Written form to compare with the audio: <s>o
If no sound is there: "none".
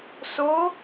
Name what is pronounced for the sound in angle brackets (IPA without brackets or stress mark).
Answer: s